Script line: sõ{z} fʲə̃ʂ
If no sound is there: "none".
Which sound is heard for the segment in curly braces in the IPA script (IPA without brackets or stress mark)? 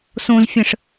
z